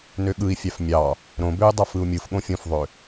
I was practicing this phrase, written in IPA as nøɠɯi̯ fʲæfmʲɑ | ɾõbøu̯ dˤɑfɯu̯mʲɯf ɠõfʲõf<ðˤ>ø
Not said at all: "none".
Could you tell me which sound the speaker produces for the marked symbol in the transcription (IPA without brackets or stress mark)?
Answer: ðˤ